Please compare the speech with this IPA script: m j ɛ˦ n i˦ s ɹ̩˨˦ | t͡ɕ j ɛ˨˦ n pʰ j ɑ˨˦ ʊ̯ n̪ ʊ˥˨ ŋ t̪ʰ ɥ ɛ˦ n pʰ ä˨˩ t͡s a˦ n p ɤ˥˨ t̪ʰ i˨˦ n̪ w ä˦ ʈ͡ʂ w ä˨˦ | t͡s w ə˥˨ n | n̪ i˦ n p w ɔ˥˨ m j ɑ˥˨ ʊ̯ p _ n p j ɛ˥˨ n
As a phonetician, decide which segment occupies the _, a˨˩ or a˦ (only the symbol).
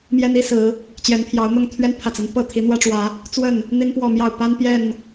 a˦